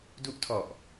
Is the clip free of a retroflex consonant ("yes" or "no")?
yes